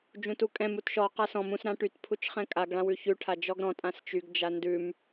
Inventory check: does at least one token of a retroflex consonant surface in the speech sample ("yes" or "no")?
yes